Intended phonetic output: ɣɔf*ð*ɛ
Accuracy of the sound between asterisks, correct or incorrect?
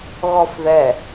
correct